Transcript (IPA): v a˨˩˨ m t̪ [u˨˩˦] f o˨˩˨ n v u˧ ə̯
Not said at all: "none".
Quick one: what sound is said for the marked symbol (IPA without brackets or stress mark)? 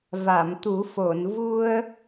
u˨˩˦